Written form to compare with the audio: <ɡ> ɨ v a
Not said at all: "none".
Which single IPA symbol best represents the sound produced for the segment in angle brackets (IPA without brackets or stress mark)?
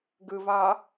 ɡ